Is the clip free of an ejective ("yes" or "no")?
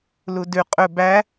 no